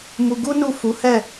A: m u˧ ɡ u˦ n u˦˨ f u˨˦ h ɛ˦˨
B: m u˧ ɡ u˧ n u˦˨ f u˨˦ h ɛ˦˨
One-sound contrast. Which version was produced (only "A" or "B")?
A